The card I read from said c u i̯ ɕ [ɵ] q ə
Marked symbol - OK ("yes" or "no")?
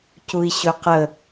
yes